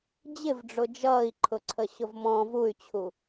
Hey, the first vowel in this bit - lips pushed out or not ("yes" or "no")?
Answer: no